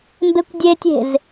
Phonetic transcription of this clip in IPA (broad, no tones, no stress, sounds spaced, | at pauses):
m b e kʷ dʲ e tʲ e̤ z